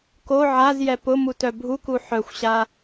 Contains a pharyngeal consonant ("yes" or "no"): yes